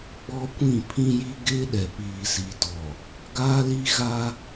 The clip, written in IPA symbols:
ɡ͡b ɔ˦ kʷ ĩ˦˨ pʰ ĩ˦ j i˦ ɡ ɪ˦ ɗ ɛ˨ p iː˨ s i˨ t ɔ˨ | ɡ aː˦ l i˦ ɣ a˦

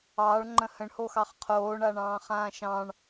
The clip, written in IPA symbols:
ɑː ɭ ŋ͡ǃ ə̃ h ə̃ ɳ h o x ɑ χ qʰ oː ɳ a ɳ ɑ̃ː χ ãː ʃ ɑ̃ ɳ

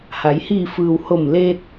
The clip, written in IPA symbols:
h a˩˧ j h iː˧˩ f ɯː˩ w h o˧˩ m l eː˧ t̚

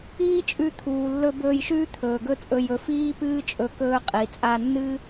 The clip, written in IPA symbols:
iː˦ t͡ʃʼ ʉ˧ t̪ʰ uː˨ lː ɵ˧ b ɵː˧ j ʃ ʉː˦ t̪ʰ ɵː˨ ɡ ɵ˦ t͡sʼ ɵ˧ j ɵ˧ f iː˦ p ɨː˦ t͡ʃʼ ɵ˧ k ɵː˧ qʼ i˨ t͡sʼ a˧ nː ɨ˦

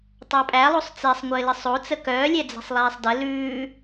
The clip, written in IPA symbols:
tˤ a pʼ æ lˠ o sˤ t͡s e sˤ ŋʷ ɘː l ɘ sˤ o t͡s ə k œː lʲ ɛ d͡z ɛ̤ sˤ lˠ ɛː sˤ d ə l ʉː

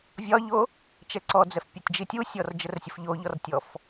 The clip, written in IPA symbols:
vʲ ɒ ʎ o | t͡ʃ ɛ ǀ ɔ d͡z ɛ f pʲ ɒ tʲ d͡ʒ i tʲ u sʲ ɔ r d͡ʒ ə r sʲ ə f ʎ o ʎ ɔ r tʲ ɔ f

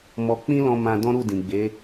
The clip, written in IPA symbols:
m ɔ˧ k͡p ĩ˦ l ɔ̃˧ m ã˧ d ɔ̃˦ ɾ u˦˨ d ĩ˨ ɡ͡b e˨˦

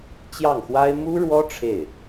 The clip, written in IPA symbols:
t͡ɕ j ɑ˥˩ ŋ x w a˥ ɪ̯ m u˥ ɻ w ɔ˥ ʈ͡ʂʰ e˥˩ ɪ̯

